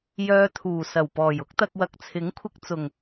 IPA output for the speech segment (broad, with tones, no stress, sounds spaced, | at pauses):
j œː˧ t̪ʰ uː˨˩ s ɐ˨˩ w p ɔː˨˩ j ʊ˥ k̚ t̪ ɐ˧ k̚ w ɐ˨ k̚ t͡sʰ ɪ˨˥ ŋ kʷʰ ɪ˧ k̚ t͡s ʊ˨˩ ŋ